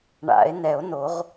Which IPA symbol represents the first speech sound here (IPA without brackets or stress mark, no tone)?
ɳ